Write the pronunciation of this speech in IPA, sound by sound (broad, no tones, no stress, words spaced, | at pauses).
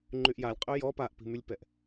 ŋ͡ǃyʔjalʲ qʼøjɔ paʔpi̤mylʲpɛʔ